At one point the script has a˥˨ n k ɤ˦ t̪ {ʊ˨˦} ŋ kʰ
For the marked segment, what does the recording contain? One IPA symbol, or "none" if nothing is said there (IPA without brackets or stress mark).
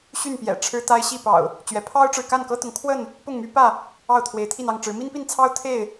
ʊ˨˦